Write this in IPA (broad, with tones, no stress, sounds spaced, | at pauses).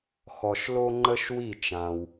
x ɔ˩ ʃ l o˧ ŋ͡ǃ ə˧ ʃ w i˥˩ t͡ʃ ã˩ w